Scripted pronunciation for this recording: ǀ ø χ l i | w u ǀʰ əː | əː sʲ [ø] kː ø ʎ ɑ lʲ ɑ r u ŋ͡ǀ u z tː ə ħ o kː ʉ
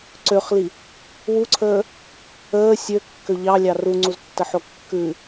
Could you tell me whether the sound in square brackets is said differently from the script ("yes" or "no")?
no